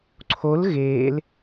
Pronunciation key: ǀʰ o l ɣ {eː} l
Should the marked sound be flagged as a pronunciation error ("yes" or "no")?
no